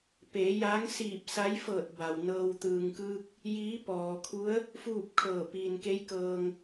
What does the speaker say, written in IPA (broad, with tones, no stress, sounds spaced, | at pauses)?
p eː˩˧ j aː˧˥ ŋ s iː˧˩ p̚ s a˧˥ j f ɤː˧˩ t̚ b a˩ w n ɤː˧ w t̪ ɯː˩ ŋ k ɯː˧ k̚ | j iː˧˥ p ɔː˩ kʰ u˧˥ ə̯ | f uː˥˨ p̚ kʰ ɤː˧˩ p iː˩ n k e˧˥ j k ɤː˧ ŋ